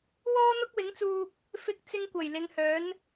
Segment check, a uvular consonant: absent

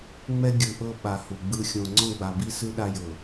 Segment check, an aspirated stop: absent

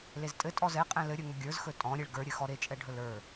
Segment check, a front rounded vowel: absent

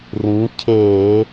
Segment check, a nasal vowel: present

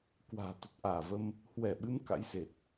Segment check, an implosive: present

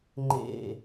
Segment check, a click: present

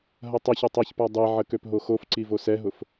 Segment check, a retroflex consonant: absent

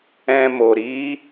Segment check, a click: absent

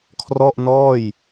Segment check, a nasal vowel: absent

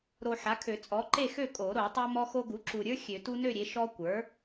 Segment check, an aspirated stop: present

